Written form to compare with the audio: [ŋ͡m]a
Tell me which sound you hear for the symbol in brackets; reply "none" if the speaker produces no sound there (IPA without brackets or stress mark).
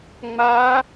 ŋ͡m